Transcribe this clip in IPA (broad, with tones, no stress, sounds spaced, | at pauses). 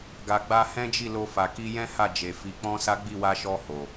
ɡ a˨ ɡ͡b a˧ h ɛ̃˦ d͡ʒ i˦˨ l o˧ f a˨ k i˧ j ɛ̃˦ h a˦˨ d͡ʒ e˨ f i˨˦ k͡p ɔ̃˦ s a˦ ɡ͡b i˦˨ w a˧ ʃ ɔ˧ h o˨